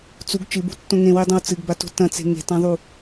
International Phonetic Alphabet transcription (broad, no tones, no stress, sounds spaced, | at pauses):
t͡s u ɡ t͡ʃ ɨ b ṳ tː õ ŋ ẽ w i dˤ õ w t͡s ɨ ɡ b a t o̤ t ɐ̃ t͡s e̤ ŋ e̤ t ã ðˤ u